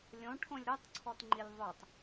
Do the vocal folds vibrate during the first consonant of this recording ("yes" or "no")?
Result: yes